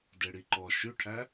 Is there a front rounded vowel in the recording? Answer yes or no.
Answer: yes